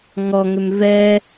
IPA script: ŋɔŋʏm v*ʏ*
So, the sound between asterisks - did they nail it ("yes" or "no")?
no